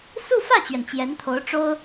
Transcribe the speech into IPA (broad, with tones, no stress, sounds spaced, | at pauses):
s u˥˧ f ä˥˩ t͡ɕ ɥ ɛ˩ n t͡ɕ j ɛ˧˥ n t̪ʰ o˧˥ ʊ̯ ʈ͡ʂ o˥ ʊ̯